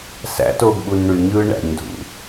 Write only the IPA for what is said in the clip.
s æ̰ t oː ɡ ɓ u n ɳ y ɲ ɯː ɳ æ̰ ɲ dʱ ṵ

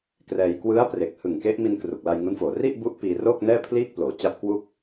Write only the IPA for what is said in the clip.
k r ɛː˧ j k w ɯ˦˥ a̯ p r e˨˩ k̚ h ɯ˨˩ ŋ k e˦˥ ʔ m i˧ n k r u˨˩ k̚ l a˧ j ŋ u˦˥ n f oː˨˩ r i˥˩ ʔ b u˦˥ ʔ p iː˧ r oː˥˩ k̚ n ɛː˥˩ pʰ l iː˥˩ k̚ p l oː˩˦ t͡ɕ a˦˥ p̚ k w u˥˩ k̚

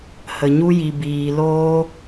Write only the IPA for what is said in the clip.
h ə˨ ɲ u˧ j i˨ b iː˨ l oː˧

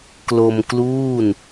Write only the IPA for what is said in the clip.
k l o˧ m k l uː˥˩ n

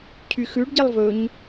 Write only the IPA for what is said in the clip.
cʰ y x ʉ ɖ ɟ i lˠ v ɵ ɲ

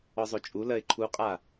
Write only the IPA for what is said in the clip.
ɔ zˤ o t͡ʃʼ u l ɜ ɪ̯ ǃʰ u qʼ a

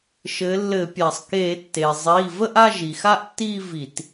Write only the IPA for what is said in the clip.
ʃ ɘ˩˧ lː ɘ˧˩˧ pʲ a˩ sˤ k e˧˩˧ tː e˩ zˤ iː˩˧˩ v ə˥˧ ʔ a˥˧ ʒ i˩ x a˥˧ ʔ tː iː˥˧ v i˧˩˧ t

